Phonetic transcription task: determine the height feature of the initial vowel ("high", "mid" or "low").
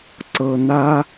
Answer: mid